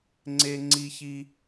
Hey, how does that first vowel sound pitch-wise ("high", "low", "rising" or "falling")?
high